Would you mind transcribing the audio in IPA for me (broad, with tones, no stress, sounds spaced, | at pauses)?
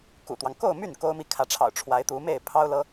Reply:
k ṵ˨˩ t̪ w ɑ˦ ŋ k o˥˧ ʊ̯ m y˥˩ n k o˥ ʊ̯ m i˥˩ kʰ ä˧˥ ʈ͡ʂʰ ɑ̰˨˩ ʊ̯ ʈ͡ʂʰ w a˧˥ ɪ̯ t̪ u˧˥ m e˥˩ ɪ̯ pʰ ɑ˥ ʊ̯ l ɤ˥